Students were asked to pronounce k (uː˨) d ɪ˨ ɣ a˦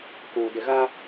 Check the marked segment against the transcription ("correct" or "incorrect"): correct